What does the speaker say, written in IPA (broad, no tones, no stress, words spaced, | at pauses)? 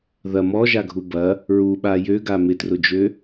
ðɐ mɔʒaɡʱu bɐ | ɹuɓa jøɡa mɪtrʊd͡ʒø